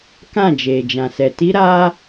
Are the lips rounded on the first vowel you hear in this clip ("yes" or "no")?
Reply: no